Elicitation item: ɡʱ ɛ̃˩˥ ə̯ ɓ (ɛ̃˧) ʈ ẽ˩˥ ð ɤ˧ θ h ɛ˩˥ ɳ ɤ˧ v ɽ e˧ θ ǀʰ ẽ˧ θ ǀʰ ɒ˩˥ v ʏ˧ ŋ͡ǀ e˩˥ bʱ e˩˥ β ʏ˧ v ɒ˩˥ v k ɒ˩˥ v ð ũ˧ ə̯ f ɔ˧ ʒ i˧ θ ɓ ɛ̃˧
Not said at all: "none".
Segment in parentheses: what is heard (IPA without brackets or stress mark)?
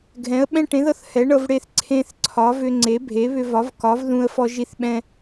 ɛ̃˧